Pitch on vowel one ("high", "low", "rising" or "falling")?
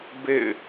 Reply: falling